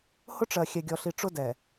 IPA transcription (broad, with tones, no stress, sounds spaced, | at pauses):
h ʊ˦ ʈ͡ʂ ɜ˨ xʲ ɛ˨ ɡʲ ɔ˨ ɬ i˨ ʈ͡ʂ ʊ˦ d ɛ˨